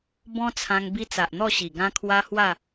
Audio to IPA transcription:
b ɔ̃˦ t͡sʰ ã˧ ŋ b i˦ t͡s a˨ ʔ n̪ ɔ˥˧ ɕ i˨˩ ɡ ã˦ kʰ w a˦ h w a˥˧

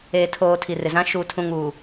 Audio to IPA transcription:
eː˨ tʰ oː˨ tʰ i˨ r ɪ˨ z ã˦ ʃ u˨ tʰ ũ˨ ŋ uː˨

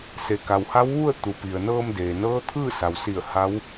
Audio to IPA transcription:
s e˩ k a˩ w h a˧˥ w ʋ u˥˨ ə̯ t̪ u˩ p i˩ ə̯ n ɤː˧ m d eː˩ n ɤː˧˥ t̪ʰ ɯː˥˨ s a˩ w s i˧˩ ə̯ h a˧˥ w

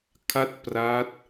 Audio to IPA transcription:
kʰ a˥˩ t̚ p r a˦˥ t̚

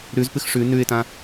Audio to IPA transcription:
ɾ ʉ z p ɨ x ʂ ʉ n ʉ ɪ̯ t ã

